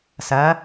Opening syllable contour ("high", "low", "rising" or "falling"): rising